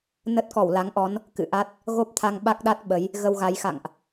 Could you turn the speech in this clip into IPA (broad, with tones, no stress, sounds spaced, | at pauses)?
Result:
n ə˦˥ t̚ k ɔ˧˩ w l a˨˦ ŋ ʔ ɔ˨˦ n | k ɨ̰˧˨ ʔ a˦˥ t̚ | ɣ o˦˥ p̚ t̪ʰ a˧ ŋ ɓ a˦˥ k̚ ɗ a˦˥ t̚ ɓ ə˨˦ j | ɣ ə˧ w ɣ a˨˦ j x a̰˧˨ ŋ ʔ